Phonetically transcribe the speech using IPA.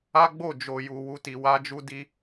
a˦ ɡ͡b o˦˨ d͡ʒ o˨ j u˨ w u˧ t i˨ w a˧ d͡ʒ u˧ d i˧

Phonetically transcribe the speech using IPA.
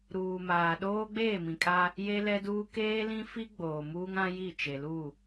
ɾ uː˨ m aː˨ ɗ oː˦ ɡ͡b eː˦˨ m ĩ˨ kʼ a˦ | j e˦ l ɛ˦ d uː˦ k eː˦ l ĩ˦ f i˦ ɡ͡b oː˨ m uː˦ ŋ ã˦ j i˦˨ t͡ʃ e˨ l u˦˨

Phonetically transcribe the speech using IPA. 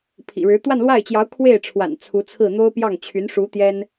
pʰ ḭ˨˩ ɻ ɻ̩˧˥ t̪ w a˥˧ n l w a˥˩ ɪ̯ t͡ɕ j ɑ˧˥ ʊ̯ kʰ w e˥˩ ɪ̯ ʈ͡ʂʰ w a̰˨˩ n t͡sʰ u˧˥ t͡sʰ ɹ̩˥˩ n̪ o˥ ʊ̯ p j ɑ˥˩ ŋ t͡ɕʰ y˧˥ n ʂ u˧˥ t̪ j ɛ˥ n

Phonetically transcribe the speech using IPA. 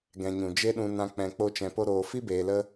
ɡ ɛ̃˨ ɲ ũ˨ d͡ʒ e˦ ɗ ũ˧ n ã˧ k͡p ɛ̃˧ k͡p o˦ t͡ʃ ɛ̃˧ p o˦ ɾ oː˧ f i˦ b eː˨ l ə˧

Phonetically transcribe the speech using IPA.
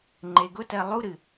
ŋ͡ǃ e ɡ ʊ t ɜ lˠ u ɾ ɨ

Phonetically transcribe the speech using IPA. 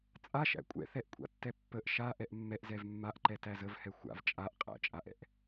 t͡sʼ a ʃ æ̰ kʷʼ ɛ̰ θ ɛ ʔ kʷʼ a̰ tː ɛ pː ə ʔ ʃ a ʔ ɛ ʔ mː ɛ ʔ z ɛ v mː a ʔ ǃ ɛ t æ z ə v h ɛ xʷ a̰ v t͡ʃʼ a ʔ qʼ æ̰ t͡ʃʼ a ʔ ɛ̰ ʔ

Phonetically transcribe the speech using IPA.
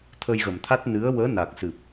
t̪ʰ ə˧ j ɣ ə˨˩ m t̪ʰ a˦˥ t̚ n ɨ˧˥ ə̯ w əː˧˥ n a˨˩ k̚ s ɨ˨˩ p̚

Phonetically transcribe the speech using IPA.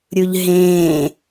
ɾʲ u ʎ ɦ ẽː

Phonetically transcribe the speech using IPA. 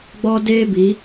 ɡ͡b ɔ˦ d eː˦ b i˨˦

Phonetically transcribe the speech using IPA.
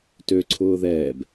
t ø ǀʰ ʊː ð ɛː b

